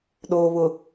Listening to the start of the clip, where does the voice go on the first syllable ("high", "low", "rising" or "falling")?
low